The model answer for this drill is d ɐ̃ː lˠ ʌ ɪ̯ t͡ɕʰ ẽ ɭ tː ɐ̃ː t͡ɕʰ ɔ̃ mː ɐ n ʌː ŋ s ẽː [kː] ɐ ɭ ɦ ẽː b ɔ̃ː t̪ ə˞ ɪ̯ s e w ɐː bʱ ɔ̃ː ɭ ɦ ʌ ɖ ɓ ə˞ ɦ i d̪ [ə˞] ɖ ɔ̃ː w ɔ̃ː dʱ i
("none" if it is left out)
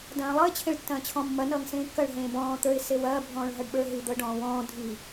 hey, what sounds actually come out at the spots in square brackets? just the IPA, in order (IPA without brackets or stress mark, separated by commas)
kː, ɤ